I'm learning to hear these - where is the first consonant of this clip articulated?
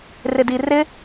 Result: tongue tip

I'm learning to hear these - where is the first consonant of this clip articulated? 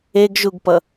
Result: velum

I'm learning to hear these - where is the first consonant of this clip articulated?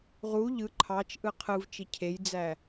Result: uvula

